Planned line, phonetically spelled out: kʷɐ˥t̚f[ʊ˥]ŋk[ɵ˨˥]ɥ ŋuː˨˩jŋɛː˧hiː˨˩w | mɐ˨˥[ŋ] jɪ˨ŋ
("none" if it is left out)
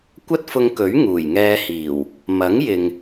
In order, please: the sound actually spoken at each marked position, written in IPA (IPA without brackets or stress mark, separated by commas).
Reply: ʊ˧, ɵ˨˥, ŋ